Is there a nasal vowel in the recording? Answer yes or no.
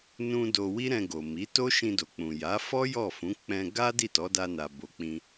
yes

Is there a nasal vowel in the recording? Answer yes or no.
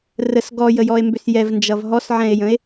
yes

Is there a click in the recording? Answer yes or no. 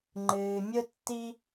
yes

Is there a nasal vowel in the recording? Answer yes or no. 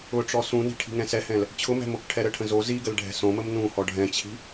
yes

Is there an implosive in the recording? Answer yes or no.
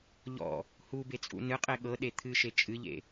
yes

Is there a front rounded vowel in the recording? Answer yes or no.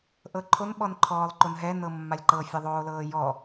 no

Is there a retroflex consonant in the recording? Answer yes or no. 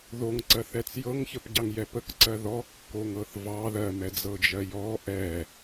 no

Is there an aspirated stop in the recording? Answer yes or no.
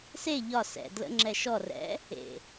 no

